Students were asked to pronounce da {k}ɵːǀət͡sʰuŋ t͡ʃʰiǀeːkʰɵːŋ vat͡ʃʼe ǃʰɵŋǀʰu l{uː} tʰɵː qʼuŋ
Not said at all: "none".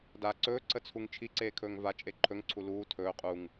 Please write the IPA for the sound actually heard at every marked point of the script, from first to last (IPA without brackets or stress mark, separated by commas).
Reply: ǀ, uː